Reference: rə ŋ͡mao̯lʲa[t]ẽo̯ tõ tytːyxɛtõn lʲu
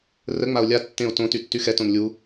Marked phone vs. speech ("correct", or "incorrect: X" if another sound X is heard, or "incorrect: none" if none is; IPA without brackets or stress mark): incorrect: tː